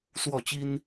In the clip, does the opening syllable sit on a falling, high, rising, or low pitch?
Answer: falling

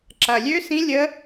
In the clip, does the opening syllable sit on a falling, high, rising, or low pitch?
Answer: low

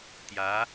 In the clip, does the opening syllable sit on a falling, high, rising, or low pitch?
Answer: rising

